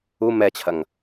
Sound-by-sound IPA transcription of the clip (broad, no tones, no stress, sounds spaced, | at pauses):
u m ɛ t͡ɕʰ ɐ ŋ